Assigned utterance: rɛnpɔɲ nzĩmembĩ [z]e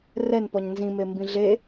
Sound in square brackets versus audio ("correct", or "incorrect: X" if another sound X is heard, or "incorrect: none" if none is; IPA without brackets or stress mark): incorrect: ɮ